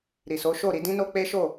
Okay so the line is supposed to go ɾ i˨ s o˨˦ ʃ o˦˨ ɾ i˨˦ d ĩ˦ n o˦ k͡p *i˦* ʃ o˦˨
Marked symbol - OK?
no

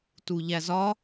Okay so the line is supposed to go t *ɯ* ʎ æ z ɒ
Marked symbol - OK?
no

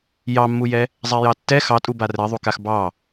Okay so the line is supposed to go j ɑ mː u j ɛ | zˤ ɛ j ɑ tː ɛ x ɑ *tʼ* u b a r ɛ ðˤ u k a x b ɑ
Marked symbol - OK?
yes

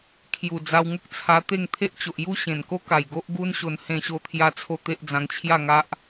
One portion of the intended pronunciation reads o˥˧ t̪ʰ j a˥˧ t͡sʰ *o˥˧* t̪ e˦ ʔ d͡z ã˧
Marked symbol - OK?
yes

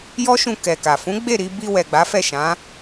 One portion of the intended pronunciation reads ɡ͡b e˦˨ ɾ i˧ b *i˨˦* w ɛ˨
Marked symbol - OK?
no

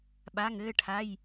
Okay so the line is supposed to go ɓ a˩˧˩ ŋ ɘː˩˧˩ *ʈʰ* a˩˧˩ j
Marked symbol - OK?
yes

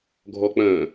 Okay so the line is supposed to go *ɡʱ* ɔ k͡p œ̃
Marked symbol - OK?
yes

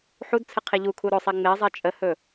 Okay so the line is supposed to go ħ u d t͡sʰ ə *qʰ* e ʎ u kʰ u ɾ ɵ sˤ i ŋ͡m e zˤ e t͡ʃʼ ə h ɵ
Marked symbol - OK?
yes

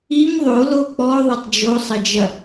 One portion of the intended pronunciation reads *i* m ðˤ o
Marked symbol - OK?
yes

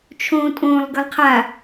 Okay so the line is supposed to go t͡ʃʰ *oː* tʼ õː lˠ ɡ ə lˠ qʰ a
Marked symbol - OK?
no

